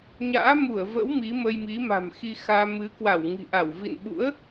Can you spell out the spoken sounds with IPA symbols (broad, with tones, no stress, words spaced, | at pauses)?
ɲa̰ː˧˥mu˧˩ə̯və̰˧˥w mi˨˦mə˧j mi˨˦ma̤˨˩mxi˧xaː˧ mɨ˨˦ kwa˧˩wŋi̤˨˩ʔa˧˩w vḭ˧˨nɓṵ˧˥ə̯